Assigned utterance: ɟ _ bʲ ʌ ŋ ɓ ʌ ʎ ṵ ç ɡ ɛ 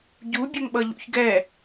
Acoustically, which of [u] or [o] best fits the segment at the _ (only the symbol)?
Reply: u